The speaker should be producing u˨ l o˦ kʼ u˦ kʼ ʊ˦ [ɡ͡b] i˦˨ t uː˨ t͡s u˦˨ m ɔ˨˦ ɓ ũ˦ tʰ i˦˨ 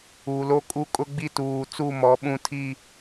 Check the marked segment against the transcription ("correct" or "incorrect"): correct